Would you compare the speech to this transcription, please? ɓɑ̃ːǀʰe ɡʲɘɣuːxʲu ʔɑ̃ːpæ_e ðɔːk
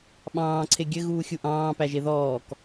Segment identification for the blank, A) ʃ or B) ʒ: B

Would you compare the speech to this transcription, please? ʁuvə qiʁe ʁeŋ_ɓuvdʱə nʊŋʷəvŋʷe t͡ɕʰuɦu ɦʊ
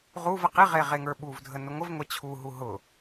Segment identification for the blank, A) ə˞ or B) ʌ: A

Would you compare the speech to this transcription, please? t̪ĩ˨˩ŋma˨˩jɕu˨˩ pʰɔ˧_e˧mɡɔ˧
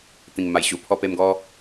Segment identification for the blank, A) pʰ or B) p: B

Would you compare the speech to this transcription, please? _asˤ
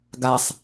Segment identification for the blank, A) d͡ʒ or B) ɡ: B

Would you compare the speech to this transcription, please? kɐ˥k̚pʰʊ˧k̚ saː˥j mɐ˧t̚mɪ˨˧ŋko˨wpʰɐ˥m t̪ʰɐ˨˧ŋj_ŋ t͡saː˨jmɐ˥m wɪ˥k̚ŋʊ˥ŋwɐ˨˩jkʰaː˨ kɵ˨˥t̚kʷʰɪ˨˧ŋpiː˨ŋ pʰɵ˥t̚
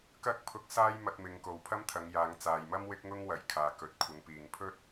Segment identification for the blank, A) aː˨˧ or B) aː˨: A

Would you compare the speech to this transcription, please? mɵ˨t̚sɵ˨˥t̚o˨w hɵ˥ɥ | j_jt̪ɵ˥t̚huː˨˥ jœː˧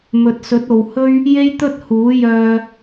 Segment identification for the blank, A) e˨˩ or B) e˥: B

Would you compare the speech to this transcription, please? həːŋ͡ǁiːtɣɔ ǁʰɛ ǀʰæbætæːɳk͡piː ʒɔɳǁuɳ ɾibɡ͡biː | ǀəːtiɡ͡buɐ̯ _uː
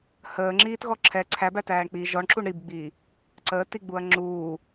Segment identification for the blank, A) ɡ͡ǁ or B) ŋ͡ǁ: B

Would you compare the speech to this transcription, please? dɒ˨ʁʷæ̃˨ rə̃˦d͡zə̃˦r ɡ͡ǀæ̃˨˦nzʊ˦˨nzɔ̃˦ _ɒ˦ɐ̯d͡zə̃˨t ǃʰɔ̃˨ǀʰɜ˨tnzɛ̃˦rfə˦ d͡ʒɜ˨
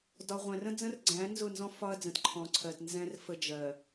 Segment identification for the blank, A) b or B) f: B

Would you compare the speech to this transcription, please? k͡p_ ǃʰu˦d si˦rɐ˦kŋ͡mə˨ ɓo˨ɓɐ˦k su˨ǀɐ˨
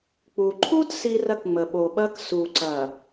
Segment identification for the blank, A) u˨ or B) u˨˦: A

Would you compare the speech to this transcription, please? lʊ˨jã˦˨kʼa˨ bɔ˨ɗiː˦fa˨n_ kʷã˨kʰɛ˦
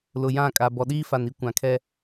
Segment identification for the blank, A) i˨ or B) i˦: B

